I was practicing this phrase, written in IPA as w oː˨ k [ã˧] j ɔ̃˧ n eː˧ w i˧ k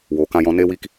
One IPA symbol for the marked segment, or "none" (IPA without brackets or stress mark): ã˧